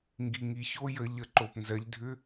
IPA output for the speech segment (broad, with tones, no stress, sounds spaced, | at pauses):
ŋ ɡ i˩ ŋ i˩ ç o˧˥ j ə˧˩˧ ʎ ə˩˧ ǃ o˩ p n z ɜ˩˧ ʎ dʱ ʏ˧˥